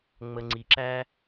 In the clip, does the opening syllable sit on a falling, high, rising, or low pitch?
low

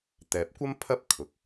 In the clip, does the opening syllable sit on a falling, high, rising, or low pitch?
low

